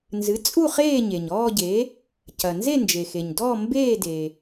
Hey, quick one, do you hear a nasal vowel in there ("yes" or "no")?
no